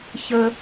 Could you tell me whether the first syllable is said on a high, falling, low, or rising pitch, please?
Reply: high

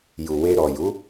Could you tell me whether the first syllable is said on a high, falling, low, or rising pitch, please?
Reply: low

